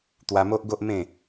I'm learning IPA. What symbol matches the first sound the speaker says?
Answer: t̪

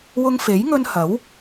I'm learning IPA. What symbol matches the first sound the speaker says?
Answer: w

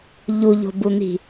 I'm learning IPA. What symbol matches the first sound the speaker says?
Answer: ʎ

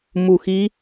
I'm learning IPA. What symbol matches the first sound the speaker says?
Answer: m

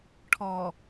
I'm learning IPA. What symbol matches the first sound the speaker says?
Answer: ʈʰ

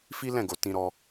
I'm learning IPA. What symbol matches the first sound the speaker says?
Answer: f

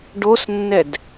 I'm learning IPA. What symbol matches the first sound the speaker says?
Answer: ɖ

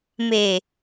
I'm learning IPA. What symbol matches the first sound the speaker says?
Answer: m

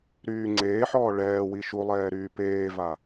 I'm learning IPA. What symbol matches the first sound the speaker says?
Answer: ɾ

